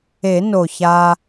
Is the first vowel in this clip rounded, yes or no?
no